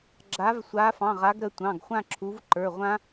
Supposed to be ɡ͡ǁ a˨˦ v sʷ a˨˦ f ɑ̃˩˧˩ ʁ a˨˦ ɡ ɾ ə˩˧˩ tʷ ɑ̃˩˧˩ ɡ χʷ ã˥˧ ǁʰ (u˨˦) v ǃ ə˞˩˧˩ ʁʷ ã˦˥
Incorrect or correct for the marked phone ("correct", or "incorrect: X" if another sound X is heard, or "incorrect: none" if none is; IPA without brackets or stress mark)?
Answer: correct